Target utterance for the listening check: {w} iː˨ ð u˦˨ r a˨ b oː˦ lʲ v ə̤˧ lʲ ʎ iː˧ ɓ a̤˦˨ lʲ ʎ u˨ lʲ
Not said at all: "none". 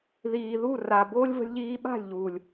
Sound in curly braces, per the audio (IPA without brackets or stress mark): ð